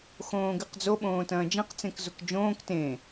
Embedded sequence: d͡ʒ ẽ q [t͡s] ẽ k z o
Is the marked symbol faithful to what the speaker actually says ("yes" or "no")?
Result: yes